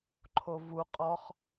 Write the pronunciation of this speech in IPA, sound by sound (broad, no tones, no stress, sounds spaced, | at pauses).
ǃʰ o v u qʼ ɔ χ